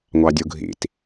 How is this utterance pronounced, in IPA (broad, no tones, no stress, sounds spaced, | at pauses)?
ŋʷ ɑ dʲ u ɡʱ ḭ t